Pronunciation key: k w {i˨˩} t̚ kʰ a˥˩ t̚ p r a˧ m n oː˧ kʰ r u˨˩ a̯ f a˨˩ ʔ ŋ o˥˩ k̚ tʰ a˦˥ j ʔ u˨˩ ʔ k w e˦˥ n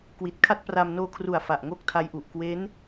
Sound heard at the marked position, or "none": i˨˩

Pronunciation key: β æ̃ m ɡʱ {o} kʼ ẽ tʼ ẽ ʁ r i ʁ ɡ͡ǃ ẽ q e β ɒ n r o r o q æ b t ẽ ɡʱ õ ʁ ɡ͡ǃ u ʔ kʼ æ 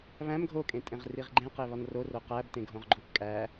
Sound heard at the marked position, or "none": o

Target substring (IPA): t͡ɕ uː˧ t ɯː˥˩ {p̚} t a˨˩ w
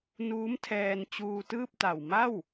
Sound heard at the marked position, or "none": p̚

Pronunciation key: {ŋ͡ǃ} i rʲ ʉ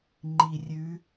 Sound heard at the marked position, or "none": ŋ͡ǃ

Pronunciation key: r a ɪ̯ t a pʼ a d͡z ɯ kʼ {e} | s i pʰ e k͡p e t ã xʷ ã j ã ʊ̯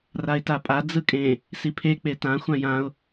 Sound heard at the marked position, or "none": ẽ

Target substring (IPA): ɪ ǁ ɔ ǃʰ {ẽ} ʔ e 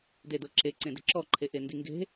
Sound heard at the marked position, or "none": e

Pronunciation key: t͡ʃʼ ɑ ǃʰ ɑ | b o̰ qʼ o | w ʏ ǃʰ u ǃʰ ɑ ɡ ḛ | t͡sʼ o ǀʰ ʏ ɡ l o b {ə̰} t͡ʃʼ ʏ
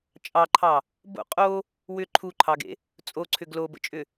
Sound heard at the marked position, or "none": ə̰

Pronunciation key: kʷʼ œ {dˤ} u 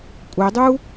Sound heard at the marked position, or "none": dˤ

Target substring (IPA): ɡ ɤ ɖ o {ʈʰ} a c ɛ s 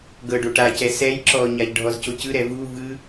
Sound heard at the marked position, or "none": ʈ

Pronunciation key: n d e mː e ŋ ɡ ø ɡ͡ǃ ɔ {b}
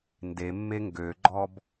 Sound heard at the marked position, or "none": b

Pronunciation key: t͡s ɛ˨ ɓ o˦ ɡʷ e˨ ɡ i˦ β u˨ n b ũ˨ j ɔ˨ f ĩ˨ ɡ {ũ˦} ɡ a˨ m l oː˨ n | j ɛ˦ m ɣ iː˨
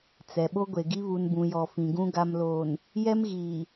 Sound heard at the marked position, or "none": ũ˦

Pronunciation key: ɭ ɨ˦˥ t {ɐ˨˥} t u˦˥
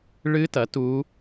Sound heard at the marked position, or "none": ɐ˨˥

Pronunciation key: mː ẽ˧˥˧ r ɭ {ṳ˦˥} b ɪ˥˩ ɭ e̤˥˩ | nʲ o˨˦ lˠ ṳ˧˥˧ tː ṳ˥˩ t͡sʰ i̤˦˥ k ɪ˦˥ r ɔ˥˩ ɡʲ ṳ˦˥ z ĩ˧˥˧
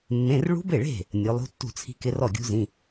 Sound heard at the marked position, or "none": ṳ˦˥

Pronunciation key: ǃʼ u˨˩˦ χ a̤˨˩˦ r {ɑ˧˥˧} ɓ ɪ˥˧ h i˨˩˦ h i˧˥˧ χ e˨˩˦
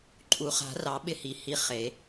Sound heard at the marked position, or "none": ɑ˨˩˦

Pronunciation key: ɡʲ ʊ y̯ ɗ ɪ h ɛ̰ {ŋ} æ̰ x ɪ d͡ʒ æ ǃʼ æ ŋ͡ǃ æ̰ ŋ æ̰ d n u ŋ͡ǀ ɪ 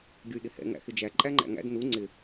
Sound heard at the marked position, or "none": ŋ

